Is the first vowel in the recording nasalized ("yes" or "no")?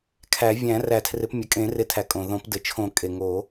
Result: no